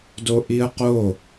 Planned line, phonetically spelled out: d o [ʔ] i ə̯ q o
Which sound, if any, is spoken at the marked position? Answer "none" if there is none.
ʔ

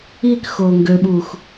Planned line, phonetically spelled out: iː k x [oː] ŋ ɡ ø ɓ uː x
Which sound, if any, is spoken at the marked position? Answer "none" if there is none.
oː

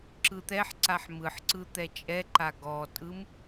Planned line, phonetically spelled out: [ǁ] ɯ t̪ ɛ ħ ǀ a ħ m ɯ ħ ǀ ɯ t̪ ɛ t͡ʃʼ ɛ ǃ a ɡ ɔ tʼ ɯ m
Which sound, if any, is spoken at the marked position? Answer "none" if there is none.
ǁ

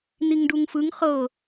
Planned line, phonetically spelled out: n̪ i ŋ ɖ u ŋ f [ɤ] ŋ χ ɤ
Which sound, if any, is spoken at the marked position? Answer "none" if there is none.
ɯ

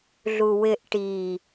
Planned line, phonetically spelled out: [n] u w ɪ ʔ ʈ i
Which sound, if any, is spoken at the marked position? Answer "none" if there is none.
ɮ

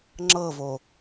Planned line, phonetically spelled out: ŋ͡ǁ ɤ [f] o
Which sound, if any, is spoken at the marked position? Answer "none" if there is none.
v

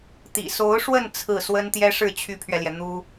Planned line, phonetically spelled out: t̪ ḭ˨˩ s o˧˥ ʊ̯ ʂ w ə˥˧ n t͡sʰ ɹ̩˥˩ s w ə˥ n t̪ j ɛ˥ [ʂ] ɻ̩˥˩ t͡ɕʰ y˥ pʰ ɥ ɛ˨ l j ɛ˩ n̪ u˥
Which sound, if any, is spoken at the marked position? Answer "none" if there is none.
ʂ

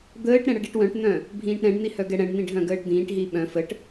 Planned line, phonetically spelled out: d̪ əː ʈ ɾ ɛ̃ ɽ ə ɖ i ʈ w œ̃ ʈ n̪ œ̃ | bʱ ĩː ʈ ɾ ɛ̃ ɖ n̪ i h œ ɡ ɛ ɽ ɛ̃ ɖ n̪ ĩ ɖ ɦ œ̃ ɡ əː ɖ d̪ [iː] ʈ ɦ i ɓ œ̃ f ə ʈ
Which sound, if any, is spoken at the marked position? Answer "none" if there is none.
ĩː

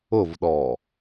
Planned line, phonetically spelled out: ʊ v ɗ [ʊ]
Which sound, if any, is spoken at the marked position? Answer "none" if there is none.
ɔ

